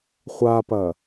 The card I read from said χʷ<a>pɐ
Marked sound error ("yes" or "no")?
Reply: no